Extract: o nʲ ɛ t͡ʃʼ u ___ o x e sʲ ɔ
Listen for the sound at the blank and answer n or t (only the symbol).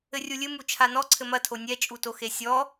t